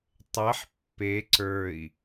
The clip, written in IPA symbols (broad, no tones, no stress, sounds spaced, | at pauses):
tˤ ɛ ħ pː e ǀ ə˞ i̯